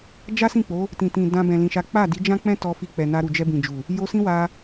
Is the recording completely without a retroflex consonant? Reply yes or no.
yes